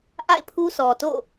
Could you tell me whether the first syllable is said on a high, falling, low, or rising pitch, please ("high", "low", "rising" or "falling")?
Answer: falling